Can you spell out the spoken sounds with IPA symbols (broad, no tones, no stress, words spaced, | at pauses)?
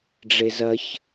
ɖ͡ʐezɐç